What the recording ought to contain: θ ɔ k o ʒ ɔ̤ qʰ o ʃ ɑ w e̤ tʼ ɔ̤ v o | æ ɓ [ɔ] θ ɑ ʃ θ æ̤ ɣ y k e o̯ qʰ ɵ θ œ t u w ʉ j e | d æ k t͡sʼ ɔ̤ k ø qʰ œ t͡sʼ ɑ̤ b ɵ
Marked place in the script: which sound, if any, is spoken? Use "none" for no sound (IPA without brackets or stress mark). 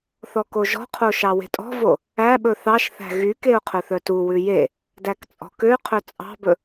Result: ɵ